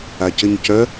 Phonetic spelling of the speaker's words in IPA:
a c ɘ ɲ c œ

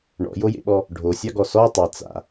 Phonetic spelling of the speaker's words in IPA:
ɳ ɔ̰ j o j ḛ ɓ ɔ | ɖʱ o sʲ ɑ ɡ ɔ s ɔ tˤ e t͡s a̰

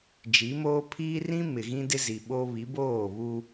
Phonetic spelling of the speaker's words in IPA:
d͡ʒ i˨˦ m oː˦ pʰ iː˦ r ĩ˦ m ɪ˨ ɣ ĩ˦ d ɪ˦ z i˨ ɓ o˦ β i˨˦ b oː˦˨ β u˦

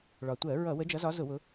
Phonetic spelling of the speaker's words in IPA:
ɭ ɒ˩ tʷ ɜ˧˩˧ ɹ ʌ˧˩˧ w ə˨˦ d͡ʒ ʌ˨˦ z ɒ˨˦ z ʊ˧˩˧ w ʊ˨˦

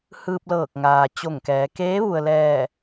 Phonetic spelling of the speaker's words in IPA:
h ɯː˧ p̚ l ɤː˧˩ k̚ ŋ aː˩ t͡ɕ o˧˩ ŋ k ɛː˩˧ k eː˧˥ ʋ u˩ ə̯ l ɛː˧˩

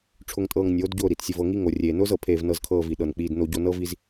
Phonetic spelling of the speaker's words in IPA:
ʈ͡ʂʰ ʊ˧ ŋ tʼ ɤː˧ ŋ nʲ oː˨˦ d ɟ ʊː˦˨ ɾ i˨ t sʲ ʊ˧ v ɤ˧ ŋ i˦ ŋ o˨ rʲ eː˨ n ʊː˦ z ɤ˨ pʰ eː˧ v n ɤ˧ z kʰ ɤː˧ v i˨ ɗ ɤ˨ n k͡p iː˧ d n o˧ ɟ o˧ n ɤ˦ v i˧ z

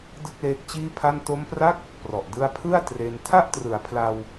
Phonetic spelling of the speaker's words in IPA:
d ɯ˥˩ k̚ l eː˦˥ k̚ t͡ɕ iː˥˩ pʰ a˥˩ n t o˦˥ m p r a˥˩ k̚ | p r ɔ˨˩ ʔ d ɯ˦˥ a̯ pʰ ɯ˥˩ a̯ t r e˧ n tʰ a˥˩ ʔ t r ɯ˩˦ a̯ pʰ l a˧ w

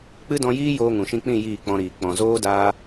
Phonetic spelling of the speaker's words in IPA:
k͡p ɨ˦ d ɔ̃˧ j iː˦ j oː˧ ŋ ũ˨ ʃ ĩ˧ k͡p ĩ˦˨ j iː˦˨ k͡p ɔ̃˧ ɾ iː˨ k͡p ɔ̃˨ z oː˦ d aː˧

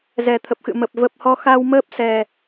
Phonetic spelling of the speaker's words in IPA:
z ɛ˨˩ t̪ʰ ə˨˩ p̚ x ɨ̰˧˨ m ə˨˩ p̚ v ə˨˩ p̚ h ɔ˧ x a˧ w m əː˦˥ p̚ s ɛ˨˩

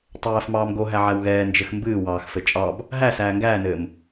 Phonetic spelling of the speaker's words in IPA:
tˤ æː f m ɑː m ɡ o ɦ æ ʕ æ w ɣ ɛː n d͡ʒ ɘ x m b ɨː w ɑː x f ɘ t͡ʃʼ ɑ b | ɦ æ s æː ŋ ɡ æː n ɘː m

